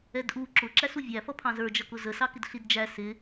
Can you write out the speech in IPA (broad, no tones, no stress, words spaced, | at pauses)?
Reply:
ɛdʔu ǁʊ ǁæsuvʲæ fʌpʰɑ̃zə˞ d͡ʒʌkʊzə sɑkɪdɬidd͡ʒæ sɪ